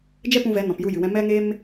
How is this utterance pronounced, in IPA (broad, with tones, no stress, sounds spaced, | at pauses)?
d͡ʒ ɛ˦ p ũ˧ v ɛ˨˦ n ɔ̃˨ p j u˧ j ɨ˨ w ɛ̃˧ m ɛ˦ ŋ e˦ m